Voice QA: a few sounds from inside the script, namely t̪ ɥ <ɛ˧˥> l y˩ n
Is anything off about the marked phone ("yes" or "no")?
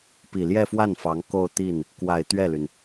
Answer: yes